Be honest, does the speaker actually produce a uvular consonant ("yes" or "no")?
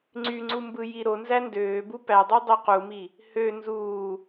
yes